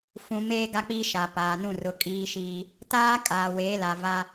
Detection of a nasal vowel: present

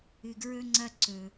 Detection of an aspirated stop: absent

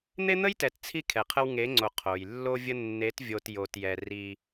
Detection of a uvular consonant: present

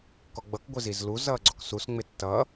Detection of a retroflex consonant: absent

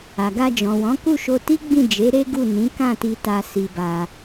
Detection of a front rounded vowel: absent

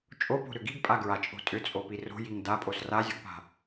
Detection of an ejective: present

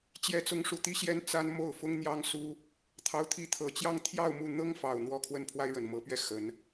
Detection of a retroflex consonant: present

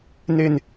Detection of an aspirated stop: absent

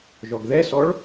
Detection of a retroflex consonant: present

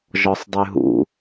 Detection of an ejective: absent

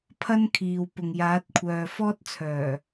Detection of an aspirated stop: present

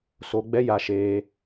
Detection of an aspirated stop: absent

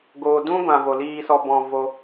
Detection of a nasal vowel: present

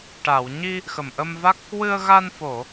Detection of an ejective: absent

